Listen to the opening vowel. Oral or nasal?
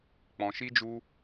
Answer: nasal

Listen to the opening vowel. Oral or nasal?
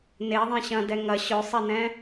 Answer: oral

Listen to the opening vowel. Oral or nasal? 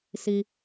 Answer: oral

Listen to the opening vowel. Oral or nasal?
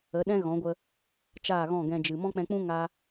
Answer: oral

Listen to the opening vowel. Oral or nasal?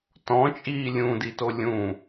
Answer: nasal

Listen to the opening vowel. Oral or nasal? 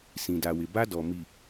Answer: nasal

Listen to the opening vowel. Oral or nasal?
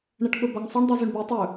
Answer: oral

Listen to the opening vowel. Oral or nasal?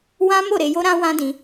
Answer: nasal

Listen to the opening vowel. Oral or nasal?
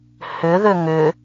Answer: oral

